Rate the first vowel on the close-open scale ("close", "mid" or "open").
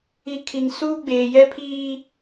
close